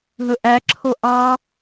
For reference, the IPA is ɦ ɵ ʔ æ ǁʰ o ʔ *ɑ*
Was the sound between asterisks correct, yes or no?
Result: yes